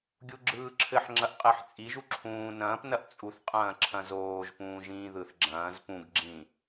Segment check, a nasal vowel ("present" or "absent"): present